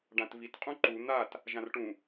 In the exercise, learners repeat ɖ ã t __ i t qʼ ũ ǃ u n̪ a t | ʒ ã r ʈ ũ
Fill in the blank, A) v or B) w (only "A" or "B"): A